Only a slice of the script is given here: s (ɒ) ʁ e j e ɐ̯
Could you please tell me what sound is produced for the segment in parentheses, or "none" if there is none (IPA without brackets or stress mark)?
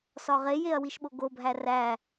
ɒ